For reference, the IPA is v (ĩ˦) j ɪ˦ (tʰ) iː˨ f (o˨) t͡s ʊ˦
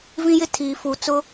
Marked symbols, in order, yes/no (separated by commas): yes, yes, no